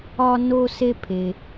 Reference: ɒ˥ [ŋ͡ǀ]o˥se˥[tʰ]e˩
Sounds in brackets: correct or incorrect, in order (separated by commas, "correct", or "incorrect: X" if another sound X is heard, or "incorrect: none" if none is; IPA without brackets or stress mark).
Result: incorrect: n, incorrect: pʰ